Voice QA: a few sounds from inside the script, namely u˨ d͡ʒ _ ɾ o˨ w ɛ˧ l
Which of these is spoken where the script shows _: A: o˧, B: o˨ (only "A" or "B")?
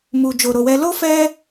B